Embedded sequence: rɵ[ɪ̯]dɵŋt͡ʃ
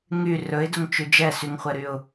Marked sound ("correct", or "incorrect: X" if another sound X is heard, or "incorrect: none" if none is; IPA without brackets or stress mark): correct